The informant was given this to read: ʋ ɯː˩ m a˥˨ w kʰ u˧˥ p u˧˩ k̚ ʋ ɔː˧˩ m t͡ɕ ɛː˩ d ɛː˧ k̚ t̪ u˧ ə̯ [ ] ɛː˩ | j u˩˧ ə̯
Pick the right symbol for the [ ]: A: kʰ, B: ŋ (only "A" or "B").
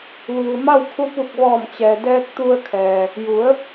A